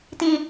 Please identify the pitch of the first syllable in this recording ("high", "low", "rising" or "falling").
low